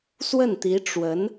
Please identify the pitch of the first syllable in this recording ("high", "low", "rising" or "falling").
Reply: falling